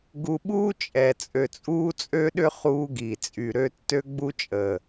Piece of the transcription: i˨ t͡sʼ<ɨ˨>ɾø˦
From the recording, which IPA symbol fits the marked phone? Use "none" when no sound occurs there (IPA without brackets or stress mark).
y˨